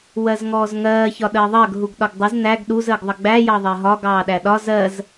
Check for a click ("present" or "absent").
absent